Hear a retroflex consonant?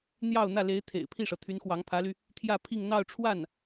yes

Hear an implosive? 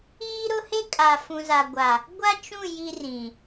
no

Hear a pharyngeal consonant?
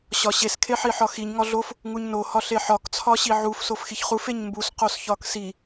yes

